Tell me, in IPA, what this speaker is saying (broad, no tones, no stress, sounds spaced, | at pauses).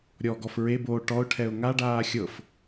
ɾʲ ɔ ɡ ɔ f ɹ e b oː ʈ ɔ ʊ̯ ʈʰ ɛ ʊ̯ ŋ a ɖ aː xʲ ɤ f